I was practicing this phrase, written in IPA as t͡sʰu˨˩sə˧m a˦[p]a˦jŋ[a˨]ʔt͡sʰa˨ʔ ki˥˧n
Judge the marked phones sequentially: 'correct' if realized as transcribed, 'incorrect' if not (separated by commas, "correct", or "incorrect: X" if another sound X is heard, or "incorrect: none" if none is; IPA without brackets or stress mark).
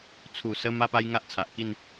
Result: correct, incorrect: a˦